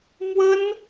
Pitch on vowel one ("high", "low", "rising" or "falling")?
high